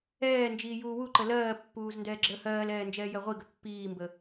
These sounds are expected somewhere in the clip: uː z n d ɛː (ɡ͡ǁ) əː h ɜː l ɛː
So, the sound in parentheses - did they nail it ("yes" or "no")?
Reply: yes